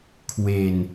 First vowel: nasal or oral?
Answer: oral